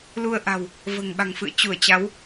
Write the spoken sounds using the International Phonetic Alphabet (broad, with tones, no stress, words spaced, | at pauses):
lu˧ə̯ʔa̤˨˩w | və̤ː˨˩ŋɓa̤˨˩ŋfɨ̰˧˨ə̯ t͡ɕu˧˩ə̯t͡ɕa˨˦w